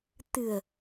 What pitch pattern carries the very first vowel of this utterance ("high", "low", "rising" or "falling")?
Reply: low